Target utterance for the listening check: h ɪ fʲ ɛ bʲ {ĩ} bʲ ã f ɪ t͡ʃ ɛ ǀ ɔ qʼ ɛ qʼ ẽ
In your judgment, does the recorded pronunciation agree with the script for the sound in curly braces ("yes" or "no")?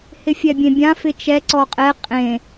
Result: no